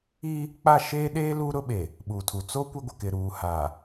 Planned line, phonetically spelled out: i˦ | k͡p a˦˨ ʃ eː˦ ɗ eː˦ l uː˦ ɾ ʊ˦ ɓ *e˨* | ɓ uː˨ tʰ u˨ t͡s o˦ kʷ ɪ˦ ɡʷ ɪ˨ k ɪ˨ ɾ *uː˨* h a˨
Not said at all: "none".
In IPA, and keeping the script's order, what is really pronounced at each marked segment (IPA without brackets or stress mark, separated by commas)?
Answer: e˨, uː˨